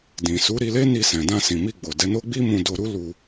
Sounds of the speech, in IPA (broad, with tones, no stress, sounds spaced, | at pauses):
d ĩ˨ s u˨˦ ɾ i˧ l e˦ n i˧ s ɛ̃˨ d ã˧ s ĩ˨ m i˧ ɡ͡b o˨ d ɛ˨˦ n o˦ ɡ͡b i˦ m ũ˧ d o˧ ɾ u˦ l u˧